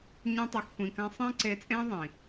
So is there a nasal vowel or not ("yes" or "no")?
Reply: yes